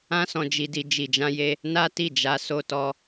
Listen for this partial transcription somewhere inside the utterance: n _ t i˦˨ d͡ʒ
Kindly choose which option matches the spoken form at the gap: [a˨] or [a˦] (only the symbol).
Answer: a˦